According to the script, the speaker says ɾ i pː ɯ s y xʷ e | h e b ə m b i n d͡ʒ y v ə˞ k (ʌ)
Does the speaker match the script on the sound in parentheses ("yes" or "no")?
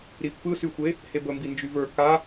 no